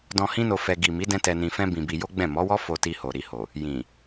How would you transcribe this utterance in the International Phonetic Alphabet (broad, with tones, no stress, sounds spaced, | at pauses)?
d ɔ̃˧ h ĩ˦ n o˧ f ɛ˧ ɡ i˨ m i˨˦ d ɛ̃˧ t ɛ˧ n ĩ˧ f ɛ̃˦ b ĩ˧ b i˧ j o˦ ɡ͡b ɛ̃˦˨ m ɔ˨˦ w ɔ˦ f o˧ t i˧ h o˨ ɾ i˧ h o˨ | j ĩ˨